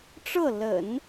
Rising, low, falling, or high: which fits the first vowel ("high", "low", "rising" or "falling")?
falling